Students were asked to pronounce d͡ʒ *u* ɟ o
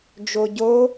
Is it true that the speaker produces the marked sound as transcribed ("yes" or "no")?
no